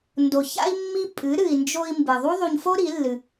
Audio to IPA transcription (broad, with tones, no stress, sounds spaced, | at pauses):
n d o˨ ç a̰˦ i̯ mː i˦ pʼ ɨ˨˦ ɾ ɨ˨ i̯ n d͡ʒ o˧ i̯ m b ɨ˨ ðˤ u˦ ðˤ u˧ ɲ f o˦ ɾ i˨˦ lː ɨ˧